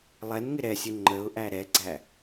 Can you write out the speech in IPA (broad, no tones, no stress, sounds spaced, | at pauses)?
lˠ ɛ n ŋ ɪ ɾ ɛ sʲ ə ŋ͡ǃ ə ʊ̯ ʔ æ ɾ ɛ ɡ͡ǀ æ